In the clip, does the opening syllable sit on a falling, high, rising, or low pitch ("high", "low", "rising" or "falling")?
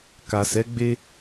low